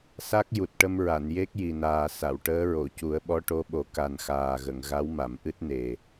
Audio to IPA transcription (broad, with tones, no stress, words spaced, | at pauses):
sa˦˥k̚ ju˨˩t̚ʈə˧mɹa˨˩˨n je˦˥k̚ji˨˩naː˨˩ sa˨˩˨wʈəː˧˥ɹo˨˩˨ cu˨˩˦ə̯ɓɔ˧˥ʈo˧˥ɓo˨˩˦ ka˨˩nxaː˨˩ɣə˨˩˨ŋ ɣa˧˥wma˨˩˨mʔɨ˦˥t̚ne˨˩